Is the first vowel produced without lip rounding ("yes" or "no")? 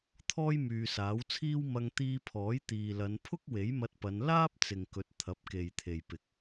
no